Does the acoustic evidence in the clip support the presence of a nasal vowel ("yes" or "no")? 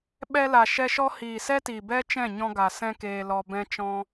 yes